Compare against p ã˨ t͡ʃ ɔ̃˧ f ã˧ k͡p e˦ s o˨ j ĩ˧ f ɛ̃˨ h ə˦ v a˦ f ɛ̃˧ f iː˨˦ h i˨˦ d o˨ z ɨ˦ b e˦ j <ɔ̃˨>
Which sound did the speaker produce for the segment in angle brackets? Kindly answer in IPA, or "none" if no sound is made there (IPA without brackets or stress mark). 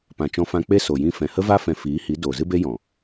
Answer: ɔ̃˨